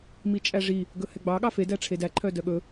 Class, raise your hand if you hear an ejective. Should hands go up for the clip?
yes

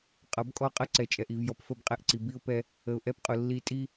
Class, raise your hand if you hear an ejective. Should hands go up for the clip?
yes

